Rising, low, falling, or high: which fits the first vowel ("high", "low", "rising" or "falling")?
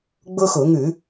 high